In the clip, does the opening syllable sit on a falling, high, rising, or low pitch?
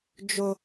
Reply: high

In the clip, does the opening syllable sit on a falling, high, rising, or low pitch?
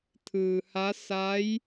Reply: low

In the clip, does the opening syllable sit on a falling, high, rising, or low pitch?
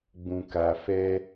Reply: low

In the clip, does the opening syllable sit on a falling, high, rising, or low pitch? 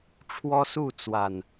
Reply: high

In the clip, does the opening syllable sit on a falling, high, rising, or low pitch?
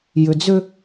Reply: low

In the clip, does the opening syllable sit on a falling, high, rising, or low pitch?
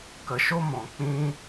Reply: low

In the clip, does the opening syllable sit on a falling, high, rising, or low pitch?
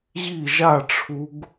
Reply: falling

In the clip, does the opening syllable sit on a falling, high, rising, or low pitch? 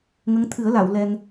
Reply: rising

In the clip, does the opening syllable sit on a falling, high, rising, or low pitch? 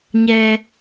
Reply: low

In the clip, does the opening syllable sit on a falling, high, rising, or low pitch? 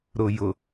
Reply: low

